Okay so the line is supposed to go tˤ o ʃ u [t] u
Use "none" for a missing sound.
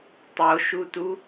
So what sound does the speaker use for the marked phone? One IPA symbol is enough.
t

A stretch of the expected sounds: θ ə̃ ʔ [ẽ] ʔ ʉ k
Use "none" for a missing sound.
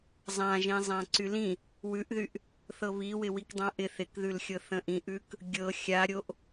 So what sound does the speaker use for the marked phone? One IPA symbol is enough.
ĩ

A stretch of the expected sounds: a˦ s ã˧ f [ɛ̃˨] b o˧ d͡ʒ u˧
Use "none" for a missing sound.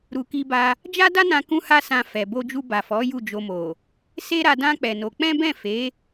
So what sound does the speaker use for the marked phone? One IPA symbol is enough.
ɛ˨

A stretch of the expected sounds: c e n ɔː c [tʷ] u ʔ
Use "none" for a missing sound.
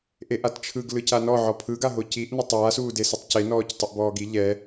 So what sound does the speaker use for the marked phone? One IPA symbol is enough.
tˤ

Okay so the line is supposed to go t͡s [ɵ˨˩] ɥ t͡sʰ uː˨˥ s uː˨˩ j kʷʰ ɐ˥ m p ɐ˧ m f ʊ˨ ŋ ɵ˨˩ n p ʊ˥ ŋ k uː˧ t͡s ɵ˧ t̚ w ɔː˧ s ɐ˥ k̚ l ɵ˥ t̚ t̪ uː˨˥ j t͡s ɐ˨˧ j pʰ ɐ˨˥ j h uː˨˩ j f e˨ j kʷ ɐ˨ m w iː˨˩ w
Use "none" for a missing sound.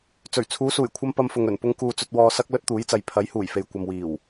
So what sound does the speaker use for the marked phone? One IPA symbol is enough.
ɵ˨˩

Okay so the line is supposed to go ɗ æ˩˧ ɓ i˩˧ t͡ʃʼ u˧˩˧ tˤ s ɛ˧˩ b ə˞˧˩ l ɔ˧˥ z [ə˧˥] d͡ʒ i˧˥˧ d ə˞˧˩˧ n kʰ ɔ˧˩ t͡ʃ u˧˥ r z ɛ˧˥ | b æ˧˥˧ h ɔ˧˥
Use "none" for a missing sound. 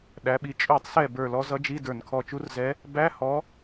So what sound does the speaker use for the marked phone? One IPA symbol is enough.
ʌ˧˥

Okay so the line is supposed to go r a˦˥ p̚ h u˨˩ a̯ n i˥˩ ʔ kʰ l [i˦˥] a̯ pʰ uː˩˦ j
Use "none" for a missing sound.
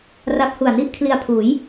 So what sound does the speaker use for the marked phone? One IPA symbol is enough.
i˧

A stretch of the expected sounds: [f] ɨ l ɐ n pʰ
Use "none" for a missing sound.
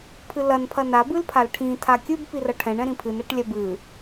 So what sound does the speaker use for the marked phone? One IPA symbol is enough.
pʰ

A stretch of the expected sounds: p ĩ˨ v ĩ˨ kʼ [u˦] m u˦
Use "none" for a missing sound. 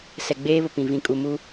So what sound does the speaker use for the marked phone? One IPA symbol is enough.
u˨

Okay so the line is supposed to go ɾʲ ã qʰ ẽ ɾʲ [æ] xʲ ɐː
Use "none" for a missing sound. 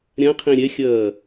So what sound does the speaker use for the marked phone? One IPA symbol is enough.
ɛ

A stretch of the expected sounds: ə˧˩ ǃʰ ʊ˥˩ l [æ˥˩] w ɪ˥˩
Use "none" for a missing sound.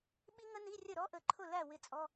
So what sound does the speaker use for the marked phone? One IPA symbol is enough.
æ˥˩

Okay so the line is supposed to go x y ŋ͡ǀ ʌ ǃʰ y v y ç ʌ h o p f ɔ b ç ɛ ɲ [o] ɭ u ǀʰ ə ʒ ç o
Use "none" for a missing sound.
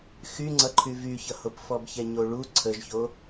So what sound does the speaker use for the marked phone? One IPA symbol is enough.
o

